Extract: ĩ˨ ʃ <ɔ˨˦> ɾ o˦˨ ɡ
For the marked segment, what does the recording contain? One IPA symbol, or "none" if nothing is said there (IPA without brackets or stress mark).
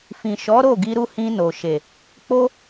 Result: ɔ˨˦